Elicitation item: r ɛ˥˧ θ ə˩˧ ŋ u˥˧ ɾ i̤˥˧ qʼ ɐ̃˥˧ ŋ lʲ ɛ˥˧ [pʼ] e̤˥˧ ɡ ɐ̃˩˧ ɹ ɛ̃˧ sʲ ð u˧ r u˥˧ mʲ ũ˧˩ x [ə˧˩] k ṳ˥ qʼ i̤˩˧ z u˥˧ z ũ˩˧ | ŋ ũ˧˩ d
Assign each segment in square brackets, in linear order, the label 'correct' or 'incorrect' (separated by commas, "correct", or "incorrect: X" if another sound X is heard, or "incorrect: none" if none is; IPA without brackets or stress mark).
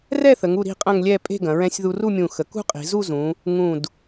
correct, incorrect: ə˩˧